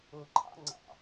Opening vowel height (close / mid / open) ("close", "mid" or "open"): close